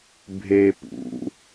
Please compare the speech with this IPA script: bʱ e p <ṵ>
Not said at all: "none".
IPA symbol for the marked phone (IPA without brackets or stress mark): ṵ